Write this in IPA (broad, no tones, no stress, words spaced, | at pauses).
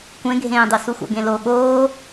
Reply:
kʷẽɡʱẽːdˤu suxʷa̰ɡẽlo ɠoː